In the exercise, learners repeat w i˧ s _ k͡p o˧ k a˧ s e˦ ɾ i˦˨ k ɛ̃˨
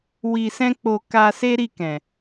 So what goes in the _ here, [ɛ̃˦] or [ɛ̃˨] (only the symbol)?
ɛ̃˦